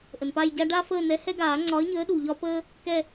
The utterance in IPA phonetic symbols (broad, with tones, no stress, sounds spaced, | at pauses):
ʔ ə˩ n p a˦˨ j ɟ a˦ ɖ a˦ f əː˦˨ n ɛ˨˥ h ɛ˦ ɡ aː˨˩˦ ŋ͡ǀ ɒ˨˥ ə̯ ɲ əː˨˥ ɗ u˩ ʎ ɒ˦ p əː˦ | k ɛ˦˨